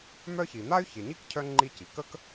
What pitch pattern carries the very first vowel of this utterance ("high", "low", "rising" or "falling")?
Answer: high